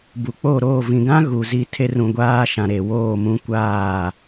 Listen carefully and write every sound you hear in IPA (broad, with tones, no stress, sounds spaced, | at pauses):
b u˨ k͡p o˦˨ ɾ oː˦˨ v ĩ˨ ɡ ã˦ ɣ u˨ z i˦ tʰ e˦ r ũ˨ ɡʷ aː˦ ʃ ã˨ ɾ e˨ w oː˦˨ m ũ˦ kʷ aː˦˨